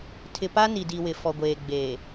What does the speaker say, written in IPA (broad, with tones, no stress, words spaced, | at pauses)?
tʰɪ˨pa˦ ni˨di˨wɪ˨ fɔ˨ɡʷeː˨ɡ͡beː˨